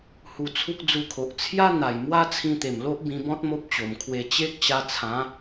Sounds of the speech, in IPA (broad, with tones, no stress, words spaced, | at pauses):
hu˧t͡sʰu˦k̚ d͡zu˧kʰo˨ʔ t͡sʰja˦ n̪a˨˩jmwa˦t͡sʰĩ˧t̪e˨˩m lo˦ʔbĩ˧bɔ̃˦t̚ mo˦p̚t͡ɕo˨˩mkʰwe˧ t͡ɕe˦k̚ ɕa˧t͡sʰã˨˦